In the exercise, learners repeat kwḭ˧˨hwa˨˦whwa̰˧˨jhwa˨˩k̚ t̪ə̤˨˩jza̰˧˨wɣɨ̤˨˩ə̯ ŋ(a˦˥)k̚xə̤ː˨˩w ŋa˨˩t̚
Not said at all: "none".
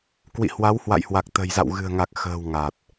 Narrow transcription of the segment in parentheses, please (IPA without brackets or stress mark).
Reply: a˨˩